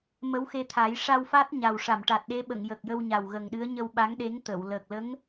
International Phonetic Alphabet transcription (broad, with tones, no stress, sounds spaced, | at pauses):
m ə˧˥ w x e˧ t̪ʰ a˨˩˦ j ʂ a˧ w f a˦˥ t̚ ɲ a˨˩ w ʂ a˨˩˨ m ʈ a˨˩ t̚ ɗ e˧˥ ɓ ə˨˩˨ ŋ j ə˨˩ k̚ j ə˧ w ɲ a˨˩ w ɣ ə˨˩ ŋ ɗ ɨ˧˥ ə̯ ɲ ə˧ w ɓ a˧˥ ŋ ɗ e˧˥ ŋ t̪ ə˨˩˨ w l əː˨˩ k̚ l ə˧˥ ŋ